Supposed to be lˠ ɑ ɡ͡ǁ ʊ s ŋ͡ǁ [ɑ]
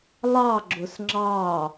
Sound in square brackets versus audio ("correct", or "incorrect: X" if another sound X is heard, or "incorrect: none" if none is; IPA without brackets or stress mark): correct